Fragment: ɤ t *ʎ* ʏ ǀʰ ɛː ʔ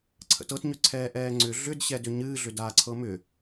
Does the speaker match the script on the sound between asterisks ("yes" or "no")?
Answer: no